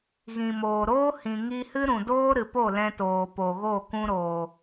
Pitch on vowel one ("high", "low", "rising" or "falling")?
low